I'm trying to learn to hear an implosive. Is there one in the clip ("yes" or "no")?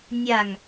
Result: no